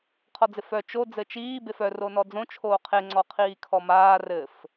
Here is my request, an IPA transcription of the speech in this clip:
qʰ ɔ d͡z ɪ f œ t͡ʃ o d͡z ɘ t͡ʃ iː b e f œ r o n ɔ d͡z õ t͡ʃʰ oː qʰ e ŋ͡ǀ ɔ qʰ iː kʰ ɔ m aː r ɘ f

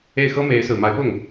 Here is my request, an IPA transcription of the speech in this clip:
e˥˩ ɪ̯ x ɤ˥ m e˧˥ ɪ̯ s ɹ̩˨˩ m a˧˥ ɪ̯ p ʊ˥˩ ŋ

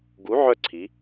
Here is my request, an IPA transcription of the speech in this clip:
ɡ u˨˥ ʕ œ˦˨ ǀʰ i˩˧

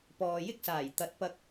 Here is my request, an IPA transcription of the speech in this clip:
p ɔː˨ j ɪ˥ k̚ s aː˨˩ j t̪ ɐ˨˥ t̚ p ɐ˧ k̚

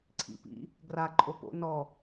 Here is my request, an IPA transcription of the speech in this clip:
ǀʰ ḭ p ḭ | ɡ r a ǃʼ o p o̰ n ɔ

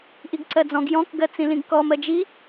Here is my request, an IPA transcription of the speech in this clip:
ʔ i ɡ ǀ ɜ d͡z ɔ̃ ɡ j ɔ̃ k ɡ ɜ t͡s ĩ l ĩ ɡ k ɔ m ɜ d͡ʒ i

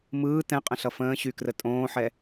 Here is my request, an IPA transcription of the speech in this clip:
m ɯː t ɛ̃ qʼ ə̃ ɬ ʌ f ə̃ː ɕ y k r ə tʼ õː ħ ɛ

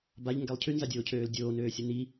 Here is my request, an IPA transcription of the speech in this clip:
b a ʎ ŋ ɡ ɛ lˠ cʰ y n z a dʲ oː cʰ øː l dʲ oː n øː sʲ ə n i

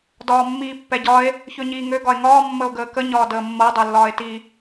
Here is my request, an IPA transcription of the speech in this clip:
d ɒː mː iː pː ɛ ɟ ɒ e̯ | ç ø ɲ iː ŋ ø ɡ ɒ e̯ ŋ ɒː mː ə o̯ ɡ əː k ə ɲ ɒː d əː mː ɤ dˤ ø lː ɒː e̯ t i

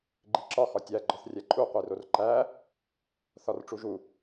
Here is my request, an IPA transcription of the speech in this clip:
ɡ͡ǃ i ǁ ɒ x ɒ tʲ æ ɡ͡ǃ ɒ θ rʲ æ ǃʼ u qʷ i r o r ǃ æ | θ ɒ r ʈ͡ʂ u ʒ u

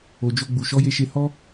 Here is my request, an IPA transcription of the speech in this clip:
o˨ d͡ʒ o˧ ɡ͡b u˨ ʃ ɔ˨˦ j e˧ ʃ e˧ h ɔ˦

